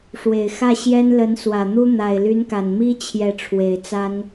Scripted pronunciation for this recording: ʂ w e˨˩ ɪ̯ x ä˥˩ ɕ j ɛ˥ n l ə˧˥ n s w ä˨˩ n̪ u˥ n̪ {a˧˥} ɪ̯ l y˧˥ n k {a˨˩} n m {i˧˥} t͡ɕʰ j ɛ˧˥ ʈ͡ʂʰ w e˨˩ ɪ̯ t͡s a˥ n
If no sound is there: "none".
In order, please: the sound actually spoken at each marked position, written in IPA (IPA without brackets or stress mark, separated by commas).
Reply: a˨˩, a˨˩, i˥